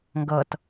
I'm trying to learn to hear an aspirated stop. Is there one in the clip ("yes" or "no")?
no